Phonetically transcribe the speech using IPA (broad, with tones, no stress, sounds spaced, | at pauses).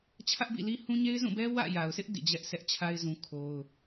t͡ɕʰ ä˦ ʔ b ḭ˦˨ l i˦ h ũ˦ ɲ e˦ ɪ̯ z ũ˦˨ b ɛ˦ w ä̰˦˨ j a˨ ʊ̯ s ɪ˦ ʔ d ḭ˦˨ d͡ʑ ɛ˦ ʔ s ɛ˦ ʔ t͡ɕʰ a˦ ɪ̯ z ũ˦ kʰ o˦ ʊ̯